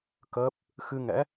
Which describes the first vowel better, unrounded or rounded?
unrounded